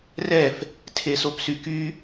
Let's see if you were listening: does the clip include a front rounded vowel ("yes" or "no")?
yes